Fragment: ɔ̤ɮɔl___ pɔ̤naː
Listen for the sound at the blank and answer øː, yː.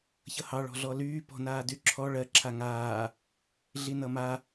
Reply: yː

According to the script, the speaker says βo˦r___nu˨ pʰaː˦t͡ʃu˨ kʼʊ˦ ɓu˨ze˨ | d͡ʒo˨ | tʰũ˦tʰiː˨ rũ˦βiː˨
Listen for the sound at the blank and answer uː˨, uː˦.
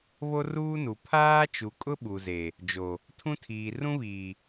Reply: uː˦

